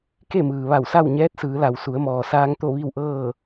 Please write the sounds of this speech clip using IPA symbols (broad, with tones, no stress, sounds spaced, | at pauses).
k e˥˨ m ɯː˩ ʋ a˧˩ w s a˥˨ w ɲ ɛː˧˥ t̚ s ɯː˩˧ l a˩ w s u˩˧ ə̯ m ɔː˩ s aː˧ ŋ t̪ o˥˨ ʋ i˥˨ w ʔ ɤː˥˨